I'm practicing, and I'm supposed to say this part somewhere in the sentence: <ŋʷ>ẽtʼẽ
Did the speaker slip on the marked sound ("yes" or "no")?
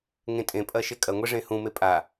yes